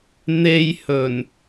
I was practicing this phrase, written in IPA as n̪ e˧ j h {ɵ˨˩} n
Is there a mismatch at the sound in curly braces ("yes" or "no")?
no